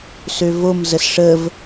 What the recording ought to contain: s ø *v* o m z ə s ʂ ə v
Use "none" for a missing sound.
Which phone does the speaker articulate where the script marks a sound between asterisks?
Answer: v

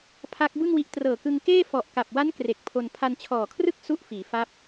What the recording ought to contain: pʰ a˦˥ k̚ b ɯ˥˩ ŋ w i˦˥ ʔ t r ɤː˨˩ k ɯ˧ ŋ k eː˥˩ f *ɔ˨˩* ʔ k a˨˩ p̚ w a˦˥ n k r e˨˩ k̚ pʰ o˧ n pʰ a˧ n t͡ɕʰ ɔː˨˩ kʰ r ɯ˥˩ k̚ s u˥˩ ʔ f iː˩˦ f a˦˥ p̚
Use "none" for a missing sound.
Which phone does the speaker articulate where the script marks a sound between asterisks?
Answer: ɔ˨˩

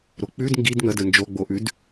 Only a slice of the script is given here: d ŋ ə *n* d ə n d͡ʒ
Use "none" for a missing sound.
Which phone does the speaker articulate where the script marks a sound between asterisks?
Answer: none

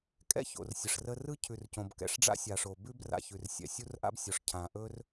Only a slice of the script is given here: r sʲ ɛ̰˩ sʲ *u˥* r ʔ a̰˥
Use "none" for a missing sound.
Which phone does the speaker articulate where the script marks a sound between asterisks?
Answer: u˥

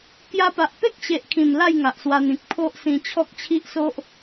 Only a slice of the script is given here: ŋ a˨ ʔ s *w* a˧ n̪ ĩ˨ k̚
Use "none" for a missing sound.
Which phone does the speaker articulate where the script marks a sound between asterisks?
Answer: w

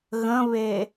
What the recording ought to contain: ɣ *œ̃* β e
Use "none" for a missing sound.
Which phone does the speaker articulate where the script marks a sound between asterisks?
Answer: ə̃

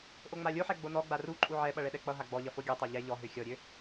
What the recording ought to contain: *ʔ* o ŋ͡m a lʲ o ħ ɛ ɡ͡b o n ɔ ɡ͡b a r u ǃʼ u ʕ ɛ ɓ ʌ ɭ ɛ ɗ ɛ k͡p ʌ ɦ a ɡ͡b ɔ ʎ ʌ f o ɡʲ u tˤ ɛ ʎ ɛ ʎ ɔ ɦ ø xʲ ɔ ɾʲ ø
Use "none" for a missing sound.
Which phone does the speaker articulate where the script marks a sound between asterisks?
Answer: ʔ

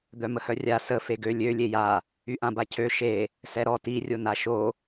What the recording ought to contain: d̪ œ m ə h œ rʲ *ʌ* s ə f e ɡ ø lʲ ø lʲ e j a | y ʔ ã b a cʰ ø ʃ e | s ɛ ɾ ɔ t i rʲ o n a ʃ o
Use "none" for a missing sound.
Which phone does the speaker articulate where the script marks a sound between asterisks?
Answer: a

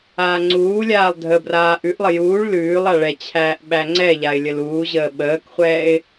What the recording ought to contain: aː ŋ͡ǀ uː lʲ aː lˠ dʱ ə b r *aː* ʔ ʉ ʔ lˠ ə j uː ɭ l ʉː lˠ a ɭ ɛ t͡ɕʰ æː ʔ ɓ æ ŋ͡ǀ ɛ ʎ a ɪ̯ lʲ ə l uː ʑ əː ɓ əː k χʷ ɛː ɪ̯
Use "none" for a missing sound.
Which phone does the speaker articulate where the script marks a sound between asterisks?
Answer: aː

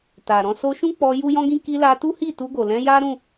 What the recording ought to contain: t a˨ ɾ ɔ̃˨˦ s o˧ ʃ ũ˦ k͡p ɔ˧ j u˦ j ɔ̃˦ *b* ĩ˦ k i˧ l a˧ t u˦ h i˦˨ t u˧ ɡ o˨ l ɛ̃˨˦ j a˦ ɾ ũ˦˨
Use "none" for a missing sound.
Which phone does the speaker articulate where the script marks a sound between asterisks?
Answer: ɡ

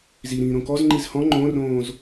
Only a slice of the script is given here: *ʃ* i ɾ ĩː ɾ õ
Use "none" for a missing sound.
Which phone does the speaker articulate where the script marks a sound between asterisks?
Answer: z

